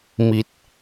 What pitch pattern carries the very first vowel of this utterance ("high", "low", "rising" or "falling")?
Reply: low